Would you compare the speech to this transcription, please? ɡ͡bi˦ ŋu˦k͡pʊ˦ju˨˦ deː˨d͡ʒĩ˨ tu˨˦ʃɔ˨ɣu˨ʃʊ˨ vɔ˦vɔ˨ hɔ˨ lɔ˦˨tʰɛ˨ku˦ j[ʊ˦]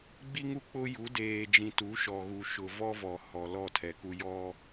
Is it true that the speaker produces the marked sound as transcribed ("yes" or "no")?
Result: no